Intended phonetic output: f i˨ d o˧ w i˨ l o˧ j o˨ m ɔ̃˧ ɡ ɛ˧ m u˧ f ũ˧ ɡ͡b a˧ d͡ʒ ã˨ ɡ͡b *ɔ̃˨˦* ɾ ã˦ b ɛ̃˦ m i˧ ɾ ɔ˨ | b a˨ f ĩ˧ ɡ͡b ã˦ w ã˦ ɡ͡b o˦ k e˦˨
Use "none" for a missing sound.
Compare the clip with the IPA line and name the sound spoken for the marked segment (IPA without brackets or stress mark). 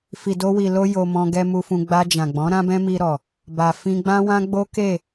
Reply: ɔ̃˨˦